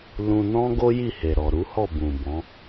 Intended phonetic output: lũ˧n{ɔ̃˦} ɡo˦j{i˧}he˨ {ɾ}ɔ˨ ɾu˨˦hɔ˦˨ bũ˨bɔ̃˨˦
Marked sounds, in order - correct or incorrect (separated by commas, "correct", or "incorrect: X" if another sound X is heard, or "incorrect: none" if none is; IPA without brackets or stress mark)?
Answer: correct, incorrect: i˦˨, correct